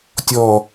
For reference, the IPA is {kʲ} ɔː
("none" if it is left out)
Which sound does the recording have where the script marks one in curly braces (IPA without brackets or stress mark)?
tʲ